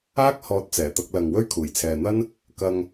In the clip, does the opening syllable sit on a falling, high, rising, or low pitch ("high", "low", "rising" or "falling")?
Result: high